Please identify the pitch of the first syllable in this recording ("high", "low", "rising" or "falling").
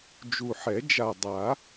low